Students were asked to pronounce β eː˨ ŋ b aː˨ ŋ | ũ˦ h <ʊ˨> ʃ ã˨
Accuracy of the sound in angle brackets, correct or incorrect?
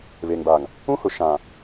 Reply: correct